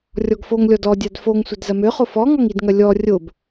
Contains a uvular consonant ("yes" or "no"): yes